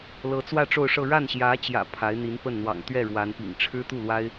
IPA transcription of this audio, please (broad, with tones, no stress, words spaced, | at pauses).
lɤ˧˥t͡swä˥˧ ʈ͡ʂo˥˧ʊ̯ʂɤ˥˧ ɻa˥˩nɕjä˧˥t͡ɕjä̰˨˩ pʰa˧˥ɪ̯n̪i˧˥npə˥˩n n̪wɑ̰˨˩ŋt̪ɥɛ˥˩ɻwa˧˥npḭ˨˩ŋ ʈ͡ʂʰɻ̩˥t̪u˥˩lwa˥ɪ̯